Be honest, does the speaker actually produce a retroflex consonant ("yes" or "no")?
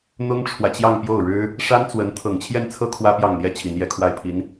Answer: yes